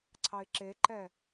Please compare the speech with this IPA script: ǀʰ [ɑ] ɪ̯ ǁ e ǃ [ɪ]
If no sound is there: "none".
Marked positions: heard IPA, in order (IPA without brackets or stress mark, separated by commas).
ɑ, ɛ